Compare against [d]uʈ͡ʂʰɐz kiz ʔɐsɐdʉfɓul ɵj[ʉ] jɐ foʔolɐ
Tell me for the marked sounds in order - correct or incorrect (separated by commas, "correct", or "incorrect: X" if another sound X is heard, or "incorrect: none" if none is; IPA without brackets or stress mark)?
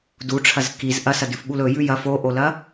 correct, correct